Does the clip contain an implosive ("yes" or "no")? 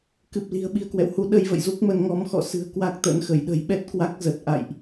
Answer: yes